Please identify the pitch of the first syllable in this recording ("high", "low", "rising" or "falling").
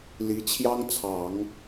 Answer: rising